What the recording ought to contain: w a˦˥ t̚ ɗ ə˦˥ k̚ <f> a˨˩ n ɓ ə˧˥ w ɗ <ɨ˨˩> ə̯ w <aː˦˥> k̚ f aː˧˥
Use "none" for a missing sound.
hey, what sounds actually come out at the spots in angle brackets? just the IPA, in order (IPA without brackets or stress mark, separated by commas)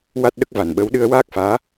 v, ɨ˧, aː˦˥